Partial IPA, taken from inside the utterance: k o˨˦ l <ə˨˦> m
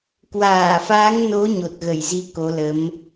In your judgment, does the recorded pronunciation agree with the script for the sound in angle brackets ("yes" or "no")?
yes